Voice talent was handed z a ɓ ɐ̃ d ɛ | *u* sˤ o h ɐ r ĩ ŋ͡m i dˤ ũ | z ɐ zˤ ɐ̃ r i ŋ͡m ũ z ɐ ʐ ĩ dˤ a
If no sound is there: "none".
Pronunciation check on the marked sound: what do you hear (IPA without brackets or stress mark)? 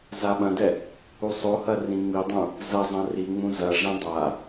u